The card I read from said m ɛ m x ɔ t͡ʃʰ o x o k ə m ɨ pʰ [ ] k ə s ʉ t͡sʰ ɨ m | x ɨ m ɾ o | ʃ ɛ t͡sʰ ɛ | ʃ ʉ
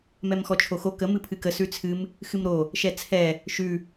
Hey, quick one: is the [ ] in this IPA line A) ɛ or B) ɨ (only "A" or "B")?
B